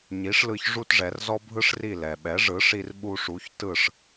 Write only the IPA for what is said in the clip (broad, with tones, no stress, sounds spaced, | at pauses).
ɲ i˩˥ ʂ l ɯ˧ ç ʐ u˥ t ʐ ɛ˩˥ r z ɔ˥ bʱ ɯ˥ ʂ r i˥˩ l ɛ˩ ɓ ɛ˩˥ ʐ ɯ˩˥ ʂ i˧ r ɓ u˧ ʂ u˩˥ ç t ɯ˥˩ ʂ